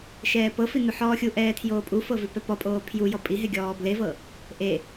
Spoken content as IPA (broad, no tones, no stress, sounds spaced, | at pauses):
ʃ ɛː p ɤ f i n u ħ ɔː xʲ u ʔ ɛː tʰ j oː pʼ u f ɤ v i p ɛ p ɔ pʼ oː pʰ j u j ɔ pʼ i ɦ e ɡʲ ɔː b l e v ɤ | ʔ e